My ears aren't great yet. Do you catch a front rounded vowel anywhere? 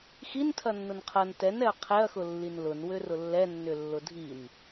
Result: yes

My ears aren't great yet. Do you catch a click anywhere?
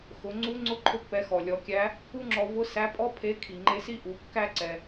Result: yes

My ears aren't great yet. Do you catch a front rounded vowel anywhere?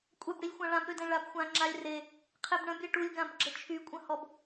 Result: yes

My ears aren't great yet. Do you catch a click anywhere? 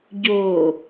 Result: no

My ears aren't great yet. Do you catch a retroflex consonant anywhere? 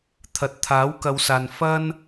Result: no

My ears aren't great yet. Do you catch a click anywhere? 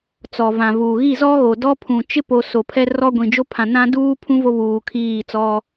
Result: no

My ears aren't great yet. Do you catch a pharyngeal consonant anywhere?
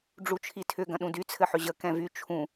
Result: yes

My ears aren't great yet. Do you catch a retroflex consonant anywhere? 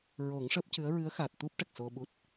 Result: yes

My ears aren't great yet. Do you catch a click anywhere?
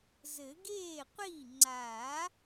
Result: yes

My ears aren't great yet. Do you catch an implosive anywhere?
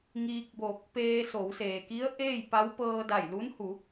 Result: no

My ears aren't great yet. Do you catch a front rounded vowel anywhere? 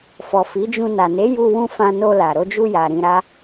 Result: no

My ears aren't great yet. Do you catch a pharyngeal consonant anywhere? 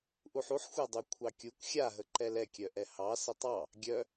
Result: yes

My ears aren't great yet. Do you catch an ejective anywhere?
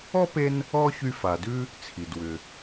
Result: no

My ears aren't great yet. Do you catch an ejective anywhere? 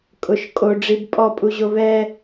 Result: yes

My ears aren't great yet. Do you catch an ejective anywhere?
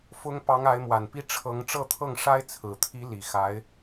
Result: no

